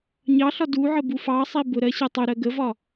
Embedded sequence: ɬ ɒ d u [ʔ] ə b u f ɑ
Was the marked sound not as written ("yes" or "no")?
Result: yes